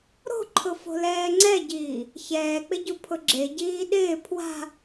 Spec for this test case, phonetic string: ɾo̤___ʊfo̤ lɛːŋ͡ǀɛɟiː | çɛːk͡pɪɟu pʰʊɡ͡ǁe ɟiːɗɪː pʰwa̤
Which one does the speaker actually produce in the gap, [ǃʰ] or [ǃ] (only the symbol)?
ǃʰ